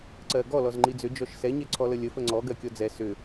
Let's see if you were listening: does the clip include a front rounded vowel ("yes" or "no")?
yes